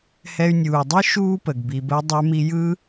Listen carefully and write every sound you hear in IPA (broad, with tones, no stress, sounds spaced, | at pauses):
h ɛ˧ y̯ nʲ uː˩ dˤ ɯ˥ ʃ uː˥ p ə˩ ɡ b i˩ b ə˧ i̯ dˤ ə˞˧ m i˧ j ɯ˥